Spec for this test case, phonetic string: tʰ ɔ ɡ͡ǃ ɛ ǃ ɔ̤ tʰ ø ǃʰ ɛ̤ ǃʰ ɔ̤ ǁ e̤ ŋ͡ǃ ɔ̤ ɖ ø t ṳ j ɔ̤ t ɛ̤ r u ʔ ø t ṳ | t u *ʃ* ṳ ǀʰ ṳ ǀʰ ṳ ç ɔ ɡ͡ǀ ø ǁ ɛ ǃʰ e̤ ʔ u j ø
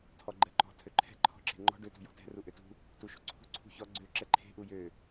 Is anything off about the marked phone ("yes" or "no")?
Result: no